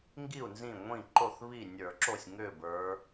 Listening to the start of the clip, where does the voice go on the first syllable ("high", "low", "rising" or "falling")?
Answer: falling